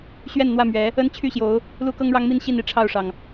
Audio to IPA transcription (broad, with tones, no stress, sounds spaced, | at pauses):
ɕ ɥ ɛ˥˨ n n̪ w ä˥˨ m ɥ ɛ˨˦ | ə˦ n t͡ɕʰ y˥˨ ɕ j o˨˦ ʊ̯ | l u˦ k ɤ˦ ŋ ɻ ɑ˦ ŋ m i˥˨ n ɕ i˥˨ n i˥˨ ʈ͡ʂʰ ɑ˥˨ ʊ̯ ʂ ɑ˩ ŋ